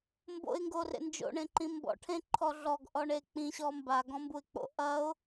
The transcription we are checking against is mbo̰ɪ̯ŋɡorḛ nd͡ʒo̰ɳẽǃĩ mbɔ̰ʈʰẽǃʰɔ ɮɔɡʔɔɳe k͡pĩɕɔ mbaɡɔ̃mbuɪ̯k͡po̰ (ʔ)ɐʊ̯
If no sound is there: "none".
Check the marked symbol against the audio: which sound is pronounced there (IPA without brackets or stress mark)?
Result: ʔ